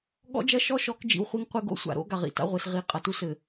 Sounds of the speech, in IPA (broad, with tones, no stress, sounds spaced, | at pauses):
ɠ ɔ̰˦ d͡ʒ ɐ˦ ʃ ɔ˦ ʃ ɔ˨˦ k d͡ʒ ḭ˨ w χʷ i˦ ŋ qʷ e˦ ɡ o̰˦ sʷ a̰˨ ɾ o̰˦ ɡ a˨ ʁ ḭ˨ t a̰˦ ʁʷ e˨ s ʁ i˨˦ qʼ ɐ˨ t u˦ s ɘ˨